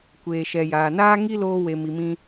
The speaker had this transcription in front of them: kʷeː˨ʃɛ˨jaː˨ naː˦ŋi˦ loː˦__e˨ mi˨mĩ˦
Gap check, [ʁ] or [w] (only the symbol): w